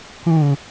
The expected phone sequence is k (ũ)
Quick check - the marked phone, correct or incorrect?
correct